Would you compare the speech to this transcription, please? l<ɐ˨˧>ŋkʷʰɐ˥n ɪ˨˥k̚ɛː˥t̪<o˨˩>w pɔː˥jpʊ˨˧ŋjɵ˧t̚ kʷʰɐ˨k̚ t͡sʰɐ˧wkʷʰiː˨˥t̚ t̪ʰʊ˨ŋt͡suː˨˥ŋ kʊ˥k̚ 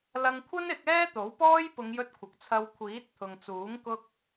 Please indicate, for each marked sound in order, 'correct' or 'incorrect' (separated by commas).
incorrect, incorrect